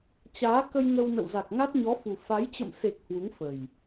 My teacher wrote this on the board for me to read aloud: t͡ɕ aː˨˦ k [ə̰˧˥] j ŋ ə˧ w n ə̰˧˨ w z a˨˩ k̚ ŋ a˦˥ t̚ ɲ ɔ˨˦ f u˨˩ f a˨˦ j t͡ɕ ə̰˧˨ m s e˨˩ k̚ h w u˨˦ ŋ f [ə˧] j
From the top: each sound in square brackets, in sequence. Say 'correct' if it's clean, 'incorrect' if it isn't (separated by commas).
incorrect, incorrect